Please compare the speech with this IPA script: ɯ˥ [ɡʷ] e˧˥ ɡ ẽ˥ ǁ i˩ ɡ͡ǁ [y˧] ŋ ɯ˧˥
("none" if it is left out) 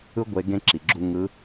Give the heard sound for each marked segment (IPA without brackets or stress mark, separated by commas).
ɡʷ, u˧